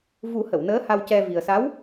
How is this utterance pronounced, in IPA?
vu˨˩˦ hə˨˩˨wnəː˧˥ ha˧wcɛ˧vi˨˩ə̯ sa˧˥w

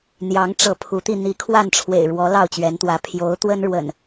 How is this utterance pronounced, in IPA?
n̪jɑ˨˦ŋʈ͡ʂɤ˨˦ pʰu˨˦t̪i˧ n̪i˨˦ kʰwa˥˨nʈ͡ʂʰwḛ˨˩ɪ̯ɻwɔ˨˦ lɑ˥˨ʊ̯t͡ɕɥɛ˨˦nt̪wä˨˦ pʰjo˨˦ʊ̯t̪wə˦nɻwə̰˨˩n

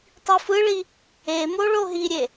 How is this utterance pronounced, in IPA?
tˤifɯɭi | emo ɭoɦiɾʲe

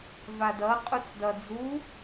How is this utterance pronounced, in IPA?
vadʌ qʼut͡sdʌ d͡zu

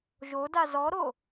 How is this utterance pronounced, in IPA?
ʒoda zɔɾo

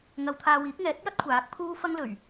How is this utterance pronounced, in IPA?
ŋɐ˧w t̪ʰaː˧wiː˨˥k̚ ŋɛː˨˥t̚jɐ˥t̚ kʷʰaː˨˥k̚pʰuː˥ fɐ˥ŋlɵ˨˩ɥ

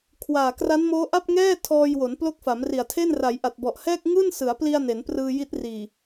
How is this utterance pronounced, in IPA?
kʰwaː˨˩kra˦˥nmoː˦˥ ʔa˥˩p̚ ŋɛː˥˩ tʰɔː˧jwo˩˦n plo˦˥k̚fa˩˦mri˨˩a̯tʰe˥˩n ra˩˦jʔa˨˩t̚bɔ˨˩ʔhɛː˥˩k̚ ŋɯː˥˩nsɯ˩˦a̯pli˧a̯ ne˩˦nprɯː˧ji˦˥t̚riː˨˩

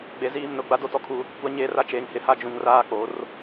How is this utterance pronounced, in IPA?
ɡ͡be˨ziː˦˨mnʊ˦˨ ɡ͡ba˦do˦˨tɔ˦kʰu˦ | kʷa˦ɲeː˦ra˦ t͡ʃeː˨ŋhɪ˨ha˦ d͡ʒũ˨ŋraː˦ k͡po˨˦r

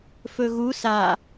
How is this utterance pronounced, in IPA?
fɵɣu sa

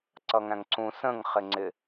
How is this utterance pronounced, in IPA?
ǀʌŋæ̃ŋǀũ sə̃ŋ χɪŋ͡ǀɪ

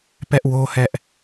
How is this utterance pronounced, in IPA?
pɛ˦ʔwo˦hɛ˦ʔ

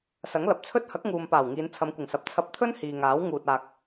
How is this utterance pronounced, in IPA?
sɐ˨˥ŋlɐ˨p̚t͡sʰɵ˥t̚ hɐ˨˥k̚ŋuː˨m paː˨˩wŋiː˨˧nt͡sʰɐ˨˧mkʷɪ˨˩ŋ sɐ˨p̚t͡sʰɐ˧p̚t̪ʰɵ˥n hiː˨ŋaː˨˥w ŋuː˨t̚aː˨k̚

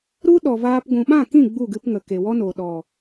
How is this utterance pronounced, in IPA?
ɾu˦ ɗɔ˨vaː˧p ɡʷũ˨ɓã˦˨kĩ˦˨ ɡ͡bu˦˨ɡɨ˧pŋə˨ ke˨wɔ˦no˨ ɗɔ˨

